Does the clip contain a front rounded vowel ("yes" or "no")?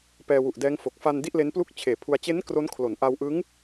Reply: no